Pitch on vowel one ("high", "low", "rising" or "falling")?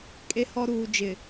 low